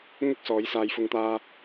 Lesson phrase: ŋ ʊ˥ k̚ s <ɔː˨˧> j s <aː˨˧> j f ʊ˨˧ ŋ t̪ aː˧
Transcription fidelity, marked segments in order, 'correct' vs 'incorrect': correct, correct

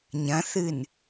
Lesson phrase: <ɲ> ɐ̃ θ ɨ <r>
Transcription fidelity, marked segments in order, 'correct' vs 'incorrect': correct, incorrect: n

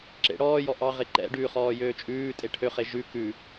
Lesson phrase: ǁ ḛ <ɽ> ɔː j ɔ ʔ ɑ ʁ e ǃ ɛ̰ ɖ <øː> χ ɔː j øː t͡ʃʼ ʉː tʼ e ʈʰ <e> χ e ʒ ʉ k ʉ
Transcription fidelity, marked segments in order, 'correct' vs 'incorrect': correct, incorrect: ʉː, incorrect: ø

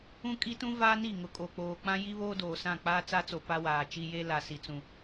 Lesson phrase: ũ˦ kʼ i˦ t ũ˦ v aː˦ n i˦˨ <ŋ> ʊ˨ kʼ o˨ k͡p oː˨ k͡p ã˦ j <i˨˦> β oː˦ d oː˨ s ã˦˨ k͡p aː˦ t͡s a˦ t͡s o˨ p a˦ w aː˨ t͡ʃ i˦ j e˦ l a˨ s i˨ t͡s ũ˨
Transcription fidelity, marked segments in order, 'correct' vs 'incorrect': correct, incorrect: i˦

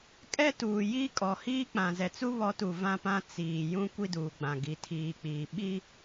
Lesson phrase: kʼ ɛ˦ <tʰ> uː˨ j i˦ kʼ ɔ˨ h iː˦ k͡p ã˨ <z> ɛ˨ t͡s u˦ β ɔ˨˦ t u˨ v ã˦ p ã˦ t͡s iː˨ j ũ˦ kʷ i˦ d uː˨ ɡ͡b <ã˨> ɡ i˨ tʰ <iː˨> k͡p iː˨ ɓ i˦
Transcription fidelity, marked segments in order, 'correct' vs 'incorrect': incorrect: t, correct, correct, correct

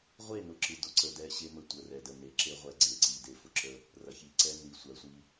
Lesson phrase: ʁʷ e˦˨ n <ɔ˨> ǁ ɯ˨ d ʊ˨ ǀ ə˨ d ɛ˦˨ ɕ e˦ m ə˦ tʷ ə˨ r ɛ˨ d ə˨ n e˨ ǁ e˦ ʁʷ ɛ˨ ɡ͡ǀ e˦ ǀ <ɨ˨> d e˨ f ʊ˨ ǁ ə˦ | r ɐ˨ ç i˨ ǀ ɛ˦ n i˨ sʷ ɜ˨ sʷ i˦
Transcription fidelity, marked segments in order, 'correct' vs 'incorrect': incorrect: ʊ˨, incorrect: i˨

